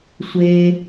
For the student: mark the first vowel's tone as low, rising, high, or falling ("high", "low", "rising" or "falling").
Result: low